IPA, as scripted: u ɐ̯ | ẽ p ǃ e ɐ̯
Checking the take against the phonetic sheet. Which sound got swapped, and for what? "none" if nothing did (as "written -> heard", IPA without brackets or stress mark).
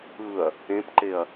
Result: u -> ɯ